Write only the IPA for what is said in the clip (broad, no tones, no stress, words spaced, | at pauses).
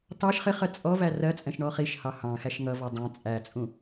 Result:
tɑʃ χɪχɜ t͡sʼɔ værɜt͡sʼɛ̃ʃ ɳɔχiʃhɑ hɑ̃ xæʃŋʌvɔ dˤɑ̃ t͡sʼæt͡sʼũ